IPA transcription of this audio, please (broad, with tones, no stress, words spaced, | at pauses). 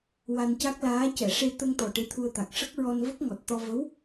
wa˧nca˦˥k̚laː˧˥ cɛ˨˩˨ʂe˧ t̪ə˧ŋt̪ɔ˨˩ ʈe˧˥t̪ʰu˧ə̯t̪a˨˩k̚ ʂə˦˥k̚ ɹɔ˧nvə˦˥k̚ŋɔ˨˩t̚t̪ɔ˧ və˧˥w